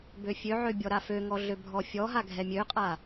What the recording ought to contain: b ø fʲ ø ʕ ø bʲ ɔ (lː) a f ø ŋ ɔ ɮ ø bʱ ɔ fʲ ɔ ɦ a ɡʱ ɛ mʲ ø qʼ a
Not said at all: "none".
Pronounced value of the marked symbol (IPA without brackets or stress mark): ɾ